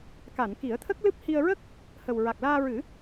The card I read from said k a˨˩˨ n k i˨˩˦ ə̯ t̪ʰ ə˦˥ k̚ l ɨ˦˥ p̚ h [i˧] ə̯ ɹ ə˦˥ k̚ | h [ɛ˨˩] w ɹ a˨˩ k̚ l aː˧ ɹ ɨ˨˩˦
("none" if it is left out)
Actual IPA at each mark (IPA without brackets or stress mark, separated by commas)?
i˧, ə˨˩